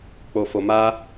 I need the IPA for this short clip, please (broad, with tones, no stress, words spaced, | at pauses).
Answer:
k͡po˧fo˧ma˦